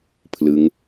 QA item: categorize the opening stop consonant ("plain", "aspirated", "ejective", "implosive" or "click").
aspirated